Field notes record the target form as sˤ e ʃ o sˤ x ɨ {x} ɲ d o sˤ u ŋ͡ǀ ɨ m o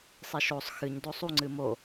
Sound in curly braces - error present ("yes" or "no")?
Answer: yes